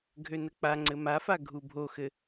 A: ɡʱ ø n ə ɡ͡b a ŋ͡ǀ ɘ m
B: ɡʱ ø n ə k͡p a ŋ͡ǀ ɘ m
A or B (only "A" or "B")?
B